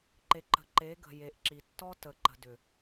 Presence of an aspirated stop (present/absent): absent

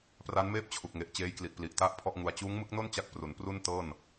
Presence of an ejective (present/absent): absent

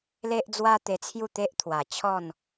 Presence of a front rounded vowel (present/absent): absent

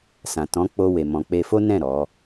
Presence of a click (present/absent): absent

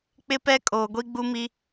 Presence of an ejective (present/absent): present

